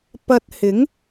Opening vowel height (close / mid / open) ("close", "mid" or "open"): open